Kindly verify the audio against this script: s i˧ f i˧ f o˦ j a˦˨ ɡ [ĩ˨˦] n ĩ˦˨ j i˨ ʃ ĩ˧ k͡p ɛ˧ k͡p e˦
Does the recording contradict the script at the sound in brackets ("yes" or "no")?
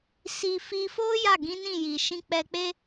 no